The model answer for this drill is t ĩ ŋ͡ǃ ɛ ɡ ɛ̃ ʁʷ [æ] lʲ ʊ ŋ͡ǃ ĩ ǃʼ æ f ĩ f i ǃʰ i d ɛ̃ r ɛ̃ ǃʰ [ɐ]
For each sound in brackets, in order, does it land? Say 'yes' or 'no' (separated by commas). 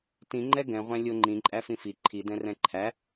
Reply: no, no